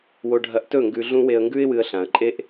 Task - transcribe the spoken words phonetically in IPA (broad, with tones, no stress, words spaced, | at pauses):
wo˧ɖʱɐ˧ʔtɵ˦˨ ŋɡʉ˧ɮũ˦ we˧ə̯ŋɡʉ˦ɪ̯ wɨ˧ə̯ɬã˨ə̯ǃʼe˦ʔ